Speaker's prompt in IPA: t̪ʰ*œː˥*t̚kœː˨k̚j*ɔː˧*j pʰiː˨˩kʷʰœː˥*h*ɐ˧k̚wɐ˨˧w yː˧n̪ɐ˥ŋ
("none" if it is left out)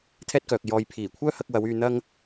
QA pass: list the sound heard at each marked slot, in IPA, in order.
ɛː˥, ɔː˧, h

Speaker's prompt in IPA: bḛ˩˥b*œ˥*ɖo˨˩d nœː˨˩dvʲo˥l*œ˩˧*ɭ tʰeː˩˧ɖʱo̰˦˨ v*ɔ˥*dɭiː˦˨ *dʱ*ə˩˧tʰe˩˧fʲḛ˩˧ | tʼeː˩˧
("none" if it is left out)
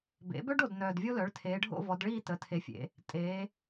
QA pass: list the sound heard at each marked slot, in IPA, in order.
œ˥, œ˩˥, ɔ˩˧, t

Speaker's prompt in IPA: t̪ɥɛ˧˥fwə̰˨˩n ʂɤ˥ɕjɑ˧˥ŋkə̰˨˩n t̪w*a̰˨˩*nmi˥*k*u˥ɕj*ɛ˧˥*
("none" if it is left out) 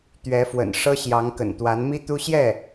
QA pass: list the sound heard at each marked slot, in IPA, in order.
a˧˥, t̪, ɛ˥˩

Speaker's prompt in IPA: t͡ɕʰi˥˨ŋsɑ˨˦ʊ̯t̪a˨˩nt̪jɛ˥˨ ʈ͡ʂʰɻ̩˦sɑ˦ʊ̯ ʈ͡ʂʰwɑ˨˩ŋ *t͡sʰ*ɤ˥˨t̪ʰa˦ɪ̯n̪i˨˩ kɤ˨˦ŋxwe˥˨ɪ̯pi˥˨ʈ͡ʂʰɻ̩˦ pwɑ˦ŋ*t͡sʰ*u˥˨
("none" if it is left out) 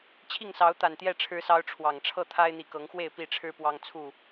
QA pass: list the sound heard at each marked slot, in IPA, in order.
ʈ͡ʂʰ, t͡sʰ

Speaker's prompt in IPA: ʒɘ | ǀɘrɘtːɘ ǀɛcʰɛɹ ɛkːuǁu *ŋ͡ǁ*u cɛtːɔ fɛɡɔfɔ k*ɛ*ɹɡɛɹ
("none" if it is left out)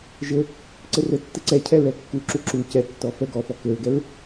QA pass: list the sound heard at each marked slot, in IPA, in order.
ǁ, ɘ

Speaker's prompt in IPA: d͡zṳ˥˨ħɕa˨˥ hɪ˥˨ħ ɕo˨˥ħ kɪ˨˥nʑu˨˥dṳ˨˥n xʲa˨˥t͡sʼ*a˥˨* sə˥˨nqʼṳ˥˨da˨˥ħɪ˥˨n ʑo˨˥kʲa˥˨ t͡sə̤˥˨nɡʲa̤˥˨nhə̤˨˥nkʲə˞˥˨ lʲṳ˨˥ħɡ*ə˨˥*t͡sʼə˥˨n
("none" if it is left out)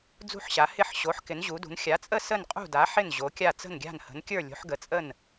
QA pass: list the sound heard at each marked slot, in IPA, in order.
ə˥˨, ə˨˥

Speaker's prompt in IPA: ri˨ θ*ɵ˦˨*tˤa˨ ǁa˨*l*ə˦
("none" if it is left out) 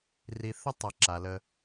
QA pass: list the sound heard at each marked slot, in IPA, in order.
ɵ˦, l

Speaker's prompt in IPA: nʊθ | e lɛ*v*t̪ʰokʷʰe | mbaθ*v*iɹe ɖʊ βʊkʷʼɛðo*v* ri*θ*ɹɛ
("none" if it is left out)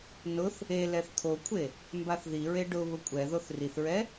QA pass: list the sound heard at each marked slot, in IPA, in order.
θ, ð, θ, θ

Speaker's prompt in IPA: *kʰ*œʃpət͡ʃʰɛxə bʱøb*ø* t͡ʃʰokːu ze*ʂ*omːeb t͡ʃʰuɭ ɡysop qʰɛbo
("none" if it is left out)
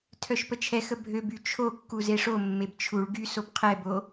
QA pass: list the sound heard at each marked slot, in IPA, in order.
tʰ, y, ʂ

